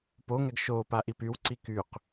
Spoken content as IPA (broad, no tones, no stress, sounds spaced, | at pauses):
p o ŋ ɛ ɡ ʃ o p a ʔ i p y w ǀ i k y q